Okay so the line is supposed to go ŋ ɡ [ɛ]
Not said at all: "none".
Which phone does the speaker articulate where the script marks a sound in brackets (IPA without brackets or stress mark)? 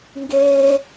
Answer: e